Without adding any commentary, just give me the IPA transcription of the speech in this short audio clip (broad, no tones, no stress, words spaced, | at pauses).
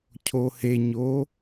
cʰoheɲo